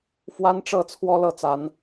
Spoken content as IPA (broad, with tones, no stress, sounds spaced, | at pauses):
f w a˦ n ʈ͡ʂ ɤ˥˨ t͡sʰ w ɔ˦ l ɤ˥˨ t͡s a˨˦ n